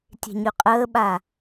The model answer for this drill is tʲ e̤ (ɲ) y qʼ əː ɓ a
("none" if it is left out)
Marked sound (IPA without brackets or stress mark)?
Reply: ɲ